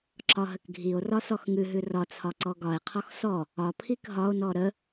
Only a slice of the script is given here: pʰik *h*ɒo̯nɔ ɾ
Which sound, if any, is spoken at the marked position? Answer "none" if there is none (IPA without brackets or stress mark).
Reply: ɦ